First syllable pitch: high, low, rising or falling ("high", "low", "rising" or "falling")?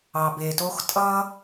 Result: low